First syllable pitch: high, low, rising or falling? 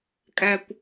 high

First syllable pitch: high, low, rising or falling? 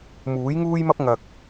rising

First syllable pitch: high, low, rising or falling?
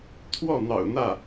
falling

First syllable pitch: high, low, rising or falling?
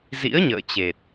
rising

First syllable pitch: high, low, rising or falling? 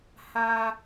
high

